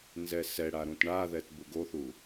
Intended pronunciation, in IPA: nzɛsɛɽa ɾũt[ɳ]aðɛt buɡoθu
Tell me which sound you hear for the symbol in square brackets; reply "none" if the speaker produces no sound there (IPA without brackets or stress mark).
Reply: ɳ